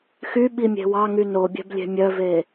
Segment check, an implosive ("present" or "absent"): present